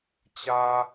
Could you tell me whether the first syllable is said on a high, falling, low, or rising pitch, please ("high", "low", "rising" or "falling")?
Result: high